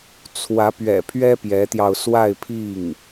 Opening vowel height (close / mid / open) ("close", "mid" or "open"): open